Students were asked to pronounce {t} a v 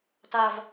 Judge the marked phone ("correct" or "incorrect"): correct